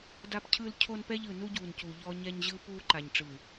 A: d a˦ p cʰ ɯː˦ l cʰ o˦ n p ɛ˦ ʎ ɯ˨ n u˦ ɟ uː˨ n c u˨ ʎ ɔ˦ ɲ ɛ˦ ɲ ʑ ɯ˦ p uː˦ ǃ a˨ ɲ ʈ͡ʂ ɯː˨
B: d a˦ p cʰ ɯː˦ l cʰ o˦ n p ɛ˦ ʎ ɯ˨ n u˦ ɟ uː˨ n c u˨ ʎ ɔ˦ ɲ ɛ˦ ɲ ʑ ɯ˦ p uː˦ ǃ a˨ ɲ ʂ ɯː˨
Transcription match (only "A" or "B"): A